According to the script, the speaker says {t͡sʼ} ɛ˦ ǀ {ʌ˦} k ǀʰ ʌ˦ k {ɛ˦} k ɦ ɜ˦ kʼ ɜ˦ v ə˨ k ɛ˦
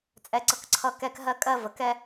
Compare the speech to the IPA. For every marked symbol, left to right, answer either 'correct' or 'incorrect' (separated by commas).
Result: correct, correct, correct